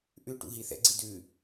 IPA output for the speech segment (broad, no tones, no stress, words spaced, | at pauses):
ʔʉʈṵ ɦiθɛ̰ɡ͡ǀi dʉ